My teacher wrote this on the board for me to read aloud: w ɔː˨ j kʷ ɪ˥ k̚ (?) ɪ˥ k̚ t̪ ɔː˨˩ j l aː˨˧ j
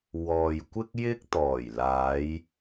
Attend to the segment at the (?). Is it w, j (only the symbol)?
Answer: j